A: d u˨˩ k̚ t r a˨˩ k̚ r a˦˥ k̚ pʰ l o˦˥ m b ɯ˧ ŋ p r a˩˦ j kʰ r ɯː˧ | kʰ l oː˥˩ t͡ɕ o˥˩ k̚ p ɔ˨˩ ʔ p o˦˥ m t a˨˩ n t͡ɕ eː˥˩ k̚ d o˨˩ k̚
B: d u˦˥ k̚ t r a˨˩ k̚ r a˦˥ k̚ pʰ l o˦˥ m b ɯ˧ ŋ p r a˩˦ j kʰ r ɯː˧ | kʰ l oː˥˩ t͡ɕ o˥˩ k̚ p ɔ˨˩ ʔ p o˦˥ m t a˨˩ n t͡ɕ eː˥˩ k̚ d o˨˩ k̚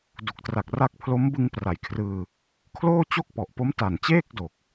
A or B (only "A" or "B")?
A